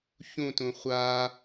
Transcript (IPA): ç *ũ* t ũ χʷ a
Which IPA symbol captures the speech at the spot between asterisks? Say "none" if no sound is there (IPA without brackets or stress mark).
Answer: ũ